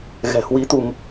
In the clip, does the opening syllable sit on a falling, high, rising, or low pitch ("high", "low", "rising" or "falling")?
low